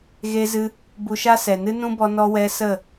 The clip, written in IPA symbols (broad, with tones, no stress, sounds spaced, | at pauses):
ɣ e˧ z ɨ˧ | b u˧ ʃ a˦ s ɛ˨ n ɨ˦ n ũ˦ b ɔ˧ n ɔ˧ w ɛ˧ s ə˦˨